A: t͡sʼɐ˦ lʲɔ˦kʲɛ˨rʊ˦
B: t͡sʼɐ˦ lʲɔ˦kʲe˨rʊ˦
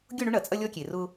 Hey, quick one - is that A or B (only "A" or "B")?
B